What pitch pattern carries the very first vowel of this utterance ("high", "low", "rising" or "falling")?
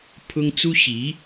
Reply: high